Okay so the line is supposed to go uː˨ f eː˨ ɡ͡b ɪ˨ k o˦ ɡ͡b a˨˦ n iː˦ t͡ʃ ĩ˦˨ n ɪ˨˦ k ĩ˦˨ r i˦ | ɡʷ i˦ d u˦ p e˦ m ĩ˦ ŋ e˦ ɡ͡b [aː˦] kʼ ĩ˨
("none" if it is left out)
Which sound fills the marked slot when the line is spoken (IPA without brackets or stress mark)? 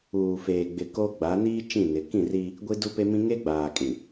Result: aː˨